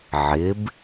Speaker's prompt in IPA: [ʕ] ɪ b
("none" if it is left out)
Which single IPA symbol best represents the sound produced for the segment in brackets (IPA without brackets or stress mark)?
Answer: ʕ